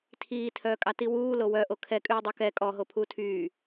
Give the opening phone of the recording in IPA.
tʰ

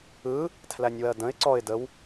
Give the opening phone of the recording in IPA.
ɯ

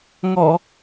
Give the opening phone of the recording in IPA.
ŋ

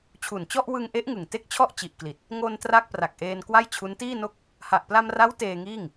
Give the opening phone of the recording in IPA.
t͡ɕʰ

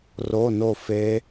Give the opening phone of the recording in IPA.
r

